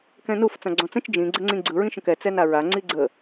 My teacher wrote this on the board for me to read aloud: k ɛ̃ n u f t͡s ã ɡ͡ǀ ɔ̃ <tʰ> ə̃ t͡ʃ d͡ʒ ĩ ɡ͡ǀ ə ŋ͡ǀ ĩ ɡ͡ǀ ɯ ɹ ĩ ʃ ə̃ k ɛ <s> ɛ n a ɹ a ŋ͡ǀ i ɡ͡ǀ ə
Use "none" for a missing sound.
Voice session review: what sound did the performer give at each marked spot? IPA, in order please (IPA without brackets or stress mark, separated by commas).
t͡s, t͡s